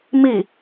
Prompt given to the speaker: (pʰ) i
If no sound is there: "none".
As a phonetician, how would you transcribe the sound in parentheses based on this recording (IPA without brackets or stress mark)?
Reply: m